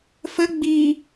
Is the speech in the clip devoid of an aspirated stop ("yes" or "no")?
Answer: yes